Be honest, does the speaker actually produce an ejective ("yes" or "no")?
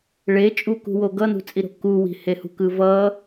yes